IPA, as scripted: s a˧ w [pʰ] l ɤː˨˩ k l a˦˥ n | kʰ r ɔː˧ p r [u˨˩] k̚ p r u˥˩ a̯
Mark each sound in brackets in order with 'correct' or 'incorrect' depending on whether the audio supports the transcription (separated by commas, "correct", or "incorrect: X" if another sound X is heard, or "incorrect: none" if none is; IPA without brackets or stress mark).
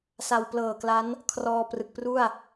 incorrect: p, incorrect: ɯ˨˩